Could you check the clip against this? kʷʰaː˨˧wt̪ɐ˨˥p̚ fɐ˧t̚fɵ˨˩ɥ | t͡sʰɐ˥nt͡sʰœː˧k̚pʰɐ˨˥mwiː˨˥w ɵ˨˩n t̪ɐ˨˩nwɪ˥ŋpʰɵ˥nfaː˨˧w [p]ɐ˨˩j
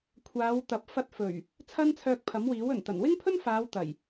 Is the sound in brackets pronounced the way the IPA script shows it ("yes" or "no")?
no